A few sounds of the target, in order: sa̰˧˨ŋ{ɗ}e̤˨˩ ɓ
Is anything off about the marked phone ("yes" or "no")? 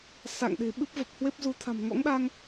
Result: no